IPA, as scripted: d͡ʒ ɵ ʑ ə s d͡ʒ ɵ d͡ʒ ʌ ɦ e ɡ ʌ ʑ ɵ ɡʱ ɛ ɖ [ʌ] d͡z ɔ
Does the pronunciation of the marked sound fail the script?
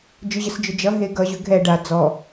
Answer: yes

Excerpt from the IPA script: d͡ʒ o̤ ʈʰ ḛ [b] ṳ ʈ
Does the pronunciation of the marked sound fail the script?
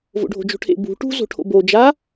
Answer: no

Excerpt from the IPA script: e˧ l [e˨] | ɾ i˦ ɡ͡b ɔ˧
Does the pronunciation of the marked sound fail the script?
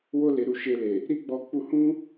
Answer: no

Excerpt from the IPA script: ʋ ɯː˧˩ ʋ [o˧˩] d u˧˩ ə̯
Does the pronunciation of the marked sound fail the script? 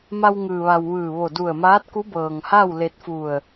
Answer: no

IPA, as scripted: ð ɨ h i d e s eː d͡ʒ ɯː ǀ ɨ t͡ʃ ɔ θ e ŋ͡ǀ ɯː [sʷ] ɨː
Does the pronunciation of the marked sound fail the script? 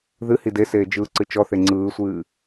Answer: no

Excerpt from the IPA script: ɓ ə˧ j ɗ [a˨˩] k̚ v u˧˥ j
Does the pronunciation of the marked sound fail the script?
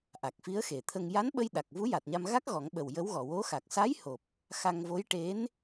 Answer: no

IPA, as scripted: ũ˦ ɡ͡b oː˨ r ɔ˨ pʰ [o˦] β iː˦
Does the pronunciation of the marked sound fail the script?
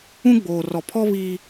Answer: yes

